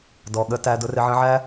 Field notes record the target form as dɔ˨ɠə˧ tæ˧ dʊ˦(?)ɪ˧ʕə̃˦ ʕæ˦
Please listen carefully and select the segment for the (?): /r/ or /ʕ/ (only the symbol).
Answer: r